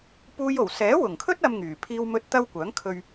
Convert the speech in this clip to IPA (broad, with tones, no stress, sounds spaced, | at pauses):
p uː˥ j o˨˩ w s ɛː˨˥ w ʊ˨˩ ŋ kʰ ɵ˥ t̚ ɐ˧ m ŋ yː˨˩ pʰ iː˥ w m ɵ˥ t̚ t̪ ɐ˥ w kʷ œː˨˥ ŋ kʰ ɵ˧ ɥ